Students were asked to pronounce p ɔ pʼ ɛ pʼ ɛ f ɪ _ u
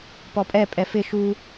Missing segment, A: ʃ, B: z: A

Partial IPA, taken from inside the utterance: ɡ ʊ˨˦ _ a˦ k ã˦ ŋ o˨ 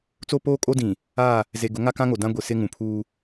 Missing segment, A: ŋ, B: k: A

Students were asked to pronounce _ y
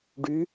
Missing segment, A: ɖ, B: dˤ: A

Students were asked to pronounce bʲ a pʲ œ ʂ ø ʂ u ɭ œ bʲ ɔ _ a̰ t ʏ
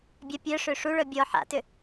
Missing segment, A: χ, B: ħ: B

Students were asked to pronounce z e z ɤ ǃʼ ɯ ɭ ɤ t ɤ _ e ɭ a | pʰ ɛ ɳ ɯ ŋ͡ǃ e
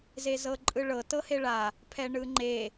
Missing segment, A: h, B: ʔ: A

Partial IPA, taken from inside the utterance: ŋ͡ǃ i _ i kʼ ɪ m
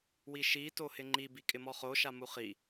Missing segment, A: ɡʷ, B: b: B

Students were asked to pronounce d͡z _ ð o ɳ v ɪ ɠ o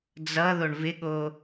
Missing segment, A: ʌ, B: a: A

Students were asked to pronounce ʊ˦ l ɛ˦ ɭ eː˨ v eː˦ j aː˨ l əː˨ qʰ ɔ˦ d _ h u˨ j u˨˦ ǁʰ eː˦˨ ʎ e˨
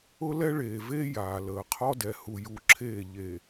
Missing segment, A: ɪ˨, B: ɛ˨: B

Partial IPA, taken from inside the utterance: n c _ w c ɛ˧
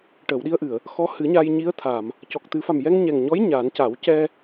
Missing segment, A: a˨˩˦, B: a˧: A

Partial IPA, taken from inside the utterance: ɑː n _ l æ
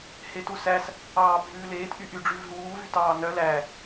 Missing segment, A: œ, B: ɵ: A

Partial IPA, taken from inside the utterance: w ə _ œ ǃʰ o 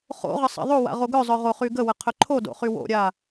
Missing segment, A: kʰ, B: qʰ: B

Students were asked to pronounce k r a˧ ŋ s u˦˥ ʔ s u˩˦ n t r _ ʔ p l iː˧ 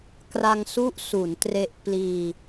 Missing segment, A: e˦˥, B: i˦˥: A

